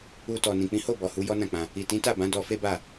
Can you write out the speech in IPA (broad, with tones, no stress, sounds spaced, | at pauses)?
u˧ t ɔ˨ n ĩ˨ k͡p ĩ˨˦ h o˦˨ b ɔ˨ h u˨˦ j ɔ˦ n ã˦˨ k͡p ã˧ | i˨ t ĩ˨˦ t a˦˨ b ã˨˦ d ɔ˧ f e˦ b a˦˨